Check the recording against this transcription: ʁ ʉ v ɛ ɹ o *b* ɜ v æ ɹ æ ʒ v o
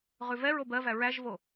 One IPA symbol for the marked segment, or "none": b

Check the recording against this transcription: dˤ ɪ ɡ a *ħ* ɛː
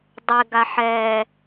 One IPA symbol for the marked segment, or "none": ħ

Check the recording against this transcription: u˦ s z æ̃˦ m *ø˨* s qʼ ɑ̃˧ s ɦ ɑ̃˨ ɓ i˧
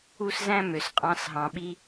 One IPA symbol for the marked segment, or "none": ø˨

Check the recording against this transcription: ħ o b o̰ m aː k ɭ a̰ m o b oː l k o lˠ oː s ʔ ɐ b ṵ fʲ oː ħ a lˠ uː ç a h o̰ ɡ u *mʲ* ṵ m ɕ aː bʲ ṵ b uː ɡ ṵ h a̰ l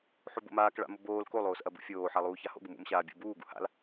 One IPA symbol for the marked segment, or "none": m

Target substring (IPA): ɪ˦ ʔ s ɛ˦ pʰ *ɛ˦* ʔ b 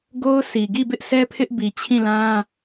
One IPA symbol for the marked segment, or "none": ɪ˦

